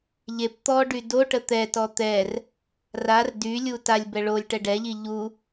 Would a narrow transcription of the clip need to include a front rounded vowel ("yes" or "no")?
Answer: yes